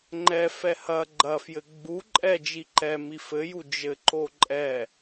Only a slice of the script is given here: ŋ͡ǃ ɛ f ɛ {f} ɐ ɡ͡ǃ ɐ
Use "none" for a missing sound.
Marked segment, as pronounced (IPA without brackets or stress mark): h